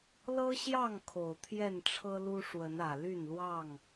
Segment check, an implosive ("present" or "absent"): absent